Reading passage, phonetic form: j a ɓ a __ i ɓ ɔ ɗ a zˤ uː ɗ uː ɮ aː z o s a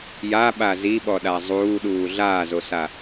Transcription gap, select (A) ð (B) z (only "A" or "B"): B